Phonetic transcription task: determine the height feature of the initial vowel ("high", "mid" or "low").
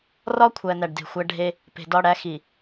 low